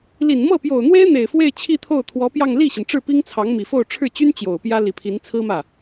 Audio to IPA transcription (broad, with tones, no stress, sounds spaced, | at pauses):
l i˨˩ n m ɤ˥˩ p j o˨˩ ʊ̯ n̪ w e˥ ɪ̯ n̪ e˨˩ ɪ̯ f w e˥˧ ɪ̯ t͡ɕʰ i˥˧ t̪ʰ o˥˩ ʊ̯ t̪ʰ w ɔ˧˥ p j ɑ˥˧ ŋ l i˥˩ ɕ i˩ n ʈ͡ʂ ɻ̩˥˩ p i˥ ŋ t͡sʰ ɑ˧˥ ŋ m i˨˩ f o˥˧ ʊ̯ ʈ͡ʂʰ ɻ̩˥˩ t͡ɕ y˥ n t͡ɕ j o˨˩ ʊ̯ p j ä˥ l i˨˩ pʰ i˧˥ n t͡sʰ ɹ̩˥ m ä˥˩